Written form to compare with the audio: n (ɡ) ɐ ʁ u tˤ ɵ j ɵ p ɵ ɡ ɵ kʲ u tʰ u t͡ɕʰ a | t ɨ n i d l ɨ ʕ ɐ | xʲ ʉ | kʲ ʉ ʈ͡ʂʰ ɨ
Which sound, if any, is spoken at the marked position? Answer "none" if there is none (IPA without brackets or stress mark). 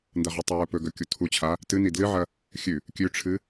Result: d